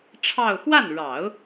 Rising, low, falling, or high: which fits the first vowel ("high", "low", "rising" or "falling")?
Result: falling